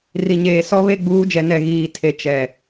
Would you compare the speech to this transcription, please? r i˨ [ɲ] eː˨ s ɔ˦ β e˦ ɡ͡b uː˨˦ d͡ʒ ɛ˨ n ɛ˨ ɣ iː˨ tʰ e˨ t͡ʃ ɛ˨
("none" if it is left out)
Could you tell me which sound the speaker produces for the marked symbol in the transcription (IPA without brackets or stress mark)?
ɲ